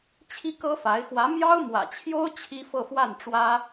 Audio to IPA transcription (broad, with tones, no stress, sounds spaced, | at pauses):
t͡ɕʰ i˥ k ɤ˥ f a˧˥ ɪ̯ x w ä˧˥ m j ɑ˥ ʊ̯ m w ä̰˨˩ t͡ɕʰ j o˥ ʊ̯ t͡ɕʰ i˥ f ɤ˥˧ f w a˥˩ n ʈ͡ʂ w ä˥